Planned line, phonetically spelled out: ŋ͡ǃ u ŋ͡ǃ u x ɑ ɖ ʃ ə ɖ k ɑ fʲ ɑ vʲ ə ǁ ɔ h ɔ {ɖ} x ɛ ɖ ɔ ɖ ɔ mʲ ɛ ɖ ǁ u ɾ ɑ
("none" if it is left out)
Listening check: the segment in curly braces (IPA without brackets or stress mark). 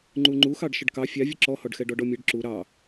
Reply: ɖ